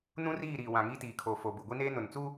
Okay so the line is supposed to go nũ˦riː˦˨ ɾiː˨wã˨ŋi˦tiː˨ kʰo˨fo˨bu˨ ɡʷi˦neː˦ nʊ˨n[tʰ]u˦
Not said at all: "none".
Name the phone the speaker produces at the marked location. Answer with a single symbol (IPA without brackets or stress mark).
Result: t͡s